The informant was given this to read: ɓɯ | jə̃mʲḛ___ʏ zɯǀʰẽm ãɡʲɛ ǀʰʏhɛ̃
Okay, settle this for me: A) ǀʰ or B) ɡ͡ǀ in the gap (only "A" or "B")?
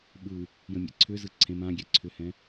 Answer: A